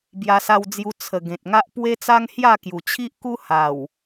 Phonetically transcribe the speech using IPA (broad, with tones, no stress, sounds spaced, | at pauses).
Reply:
b j a˧ s a˧ w d͡z j u˧ t͡sʰ ə˨˩ ɡ ẽ˨ t̚ ŋ a˦ ʔ p w e˦ t͡s a˦ ŋ h j a˥˧ k j u˨˩ t͡ɕʰ i˦ ʔ k u˦ h a˨˩ w